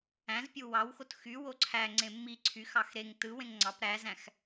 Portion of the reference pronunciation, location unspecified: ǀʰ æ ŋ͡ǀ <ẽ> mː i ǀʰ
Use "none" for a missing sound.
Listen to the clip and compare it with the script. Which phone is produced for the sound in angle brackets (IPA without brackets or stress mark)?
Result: ẽ